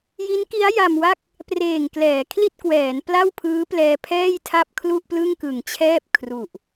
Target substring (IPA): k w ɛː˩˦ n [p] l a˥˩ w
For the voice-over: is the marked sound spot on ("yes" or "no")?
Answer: yes